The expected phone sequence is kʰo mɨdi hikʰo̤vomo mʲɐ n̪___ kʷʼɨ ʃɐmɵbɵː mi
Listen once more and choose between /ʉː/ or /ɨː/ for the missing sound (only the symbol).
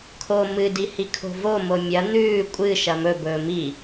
ʉː